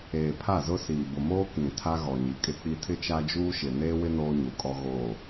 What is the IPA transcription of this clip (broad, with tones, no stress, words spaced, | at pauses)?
eː˨pʰa˦˨zʊ˦siː˨ bʊ˨moː˦ kĩ˨tʰa˦ ɣɔ˨ɲi˨kʼɪ˦k͡pi˦ tʰɪ˦t͡ʃa˦d͡ʒuː˦ʃɪ˨ neː˦wɪ˦ noː˦ɲu˨kʼɔ˦ ɣo˦˨